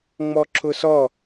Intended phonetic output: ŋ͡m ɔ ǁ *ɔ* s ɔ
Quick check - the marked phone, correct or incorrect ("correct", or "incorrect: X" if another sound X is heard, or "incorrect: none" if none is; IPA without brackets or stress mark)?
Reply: incorrect: ʊ